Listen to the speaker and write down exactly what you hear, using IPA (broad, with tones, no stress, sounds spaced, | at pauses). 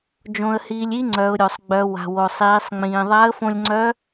d͡ʒ õ˧ ə̯ h iː˧ lʲ i˥ ŋ͡ǀ œ˩˧ ʊ̯ ɾʲ o˩ sˤ ɡ͡b œ˩˧ w a̤˩ w o˩ sˤ iː˩˧ sˤ ŋ͡m ĩː˩ ðˤ a˧˥ ə̯ f õ˧ lʲ ŋ͡ǀ œ˧˥